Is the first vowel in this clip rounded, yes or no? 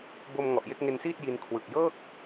yes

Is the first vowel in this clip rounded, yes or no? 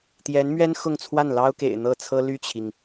no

